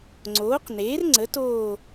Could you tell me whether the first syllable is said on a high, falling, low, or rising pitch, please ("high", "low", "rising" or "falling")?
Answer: rising